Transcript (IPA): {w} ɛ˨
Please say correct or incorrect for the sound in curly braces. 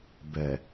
incorrect